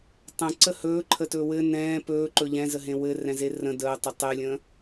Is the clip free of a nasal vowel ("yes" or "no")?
no